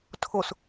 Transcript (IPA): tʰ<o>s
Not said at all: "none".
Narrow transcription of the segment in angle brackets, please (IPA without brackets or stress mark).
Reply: o